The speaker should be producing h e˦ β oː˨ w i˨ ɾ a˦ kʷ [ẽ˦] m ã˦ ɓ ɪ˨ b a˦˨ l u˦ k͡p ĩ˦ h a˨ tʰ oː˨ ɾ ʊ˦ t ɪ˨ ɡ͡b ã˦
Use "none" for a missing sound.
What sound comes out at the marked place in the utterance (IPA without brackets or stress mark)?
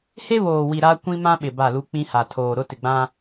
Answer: ĩ˦